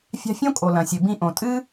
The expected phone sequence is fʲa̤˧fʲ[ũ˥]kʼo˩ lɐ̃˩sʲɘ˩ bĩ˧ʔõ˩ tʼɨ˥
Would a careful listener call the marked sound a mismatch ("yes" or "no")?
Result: yes